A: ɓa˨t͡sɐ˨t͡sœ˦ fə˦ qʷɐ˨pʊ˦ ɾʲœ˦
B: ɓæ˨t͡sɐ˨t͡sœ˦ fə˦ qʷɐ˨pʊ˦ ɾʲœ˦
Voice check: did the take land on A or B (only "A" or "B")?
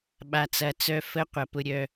A